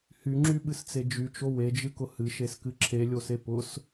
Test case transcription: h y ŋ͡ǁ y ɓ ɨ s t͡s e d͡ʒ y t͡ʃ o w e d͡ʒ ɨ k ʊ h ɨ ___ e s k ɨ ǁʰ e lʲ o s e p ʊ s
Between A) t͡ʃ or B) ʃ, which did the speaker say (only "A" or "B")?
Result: B